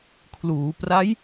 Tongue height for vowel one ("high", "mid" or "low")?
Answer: high